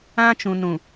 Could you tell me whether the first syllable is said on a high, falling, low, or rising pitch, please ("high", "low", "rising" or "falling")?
high